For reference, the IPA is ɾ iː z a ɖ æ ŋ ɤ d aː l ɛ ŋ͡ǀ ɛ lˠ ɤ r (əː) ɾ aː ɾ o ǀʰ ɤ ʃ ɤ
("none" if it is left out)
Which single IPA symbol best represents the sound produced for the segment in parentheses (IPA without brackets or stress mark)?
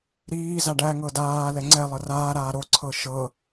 aː